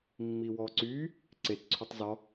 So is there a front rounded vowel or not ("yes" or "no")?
yes